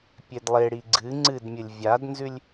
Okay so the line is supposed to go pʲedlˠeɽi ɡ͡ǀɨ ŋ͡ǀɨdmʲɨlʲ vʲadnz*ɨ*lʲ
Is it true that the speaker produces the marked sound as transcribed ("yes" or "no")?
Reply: no